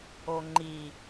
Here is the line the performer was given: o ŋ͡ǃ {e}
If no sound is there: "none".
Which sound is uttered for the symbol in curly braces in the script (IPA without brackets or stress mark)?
i